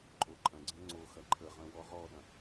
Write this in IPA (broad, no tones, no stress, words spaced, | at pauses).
ǃʼoǃʼɐ̃ɡ͡ǀə̃ ŋ͡ǀoxɐ ǃʰəʁə̃ wɔʁɔɗɐ̃